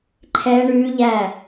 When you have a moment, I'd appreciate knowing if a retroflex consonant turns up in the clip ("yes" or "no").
yes